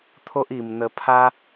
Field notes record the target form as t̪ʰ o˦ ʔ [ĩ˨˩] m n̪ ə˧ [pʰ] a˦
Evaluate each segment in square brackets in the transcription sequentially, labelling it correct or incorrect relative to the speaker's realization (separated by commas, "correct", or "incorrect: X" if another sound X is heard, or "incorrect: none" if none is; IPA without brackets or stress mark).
incorrect: i˨˩, correct